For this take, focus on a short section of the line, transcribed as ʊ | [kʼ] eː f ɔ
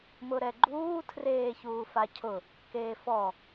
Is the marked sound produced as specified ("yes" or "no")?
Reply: no